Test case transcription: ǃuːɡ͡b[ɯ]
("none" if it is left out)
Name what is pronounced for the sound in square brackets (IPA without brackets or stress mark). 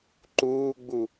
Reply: u